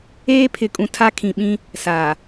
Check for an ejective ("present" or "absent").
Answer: present